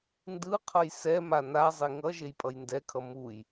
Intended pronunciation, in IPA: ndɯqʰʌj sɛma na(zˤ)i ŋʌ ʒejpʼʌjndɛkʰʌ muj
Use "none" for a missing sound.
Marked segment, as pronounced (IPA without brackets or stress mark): zˤ